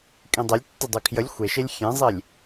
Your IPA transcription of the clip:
kʼ ĩ dˤ e lʲ tː ə dˤ ʉ kʰ j ə lʲ xʷ e ʃ e lʲ xʲ ẽ zˤ i lʲ

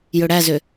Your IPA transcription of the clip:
j ɵ ɽ æ z ø

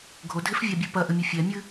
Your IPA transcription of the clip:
ɡʱ o dʱ e f vʲ a bʲ ɨ p ɐ ʔ ɘ mʲ ɨ fʲ ɛ mʲ ɨ

